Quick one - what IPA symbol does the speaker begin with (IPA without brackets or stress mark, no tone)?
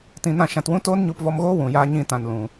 t